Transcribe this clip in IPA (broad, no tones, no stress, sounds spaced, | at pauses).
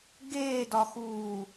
ɡ eː d ɒ x uː